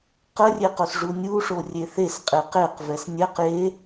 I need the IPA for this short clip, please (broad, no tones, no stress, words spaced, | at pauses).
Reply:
qərʲeqos ʐunʲu ʂorʲeθes qʼeqeq vɛsnʲɛq je